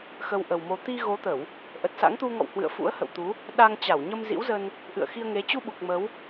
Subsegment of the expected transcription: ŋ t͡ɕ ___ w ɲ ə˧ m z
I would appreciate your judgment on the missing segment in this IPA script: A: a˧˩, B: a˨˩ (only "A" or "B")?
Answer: A